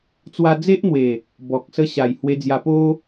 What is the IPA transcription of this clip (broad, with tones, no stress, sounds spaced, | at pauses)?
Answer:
t͡s w a˧ d͡z e˦ ʔ n̪ w e˨˩ | b ɔ˨ k̚ s ə˧ ɕ a˨˩ j h w e˧ d͡z j a˧ p o˦